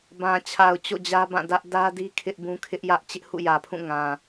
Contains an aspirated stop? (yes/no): yes